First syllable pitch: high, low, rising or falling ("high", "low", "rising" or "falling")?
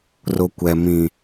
high